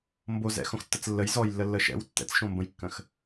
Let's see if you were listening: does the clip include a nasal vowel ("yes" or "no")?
yes